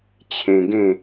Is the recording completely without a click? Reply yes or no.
yes